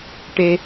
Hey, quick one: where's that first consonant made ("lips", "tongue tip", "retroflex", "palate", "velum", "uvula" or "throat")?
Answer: retroflex